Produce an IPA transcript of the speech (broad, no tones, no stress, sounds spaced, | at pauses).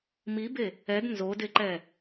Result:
m i b e | ɛ d n z o d e ǃ ɛ